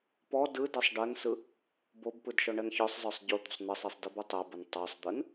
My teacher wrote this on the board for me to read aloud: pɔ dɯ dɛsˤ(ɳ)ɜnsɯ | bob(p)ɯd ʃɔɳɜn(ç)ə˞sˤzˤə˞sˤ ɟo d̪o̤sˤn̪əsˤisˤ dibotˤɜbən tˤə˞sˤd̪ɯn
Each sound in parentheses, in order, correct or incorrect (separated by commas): incorrect, correct, correct